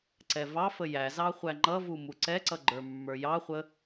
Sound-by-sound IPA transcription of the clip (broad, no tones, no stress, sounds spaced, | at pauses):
ǀ ɛ v ɑ f ə j æ z ɑ χʷ æ ŋ͡ǃ ʌ v u m u ǀ ɛ ǀ ʌ ɡ͡ǃ ə˞ mː ə˞ j ɑ χʷ ə